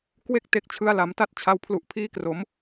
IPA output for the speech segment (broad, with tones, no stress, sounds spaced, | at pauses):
k w e˥˩ k̚ t e˥˩ k̚ t͡ɕʰ ɯ˦˥ a̯ l a˩˦ m t a˥˩ t̚ t͡ɕʰ a˧ w pʰ l u˨˩ ʔ pʰ iː˦˥ k r o˩˦ m